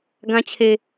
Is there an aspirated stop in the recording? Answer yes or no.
yes